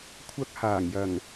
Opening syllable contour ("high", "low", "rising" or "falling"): high